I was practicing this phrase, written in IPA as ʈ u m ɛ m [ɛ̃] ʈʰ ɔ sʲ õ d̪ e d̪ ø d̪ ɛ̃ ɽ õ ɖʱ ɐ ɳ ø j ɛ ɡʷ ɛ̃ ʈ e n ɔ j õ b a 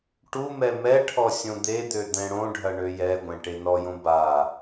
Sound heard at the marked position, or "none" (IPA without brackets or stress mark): ɛ